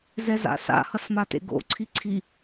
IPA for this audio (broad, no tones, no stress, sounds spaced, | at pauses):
z ɛ z a̰ s a̰ h ʌ s m a t ḛ ɡ o̰ ǀʰ i ǀʰ i